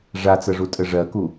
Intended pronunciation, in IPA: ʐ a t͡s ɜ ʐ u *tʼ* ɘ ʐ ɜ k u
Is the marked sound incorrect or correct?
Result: correct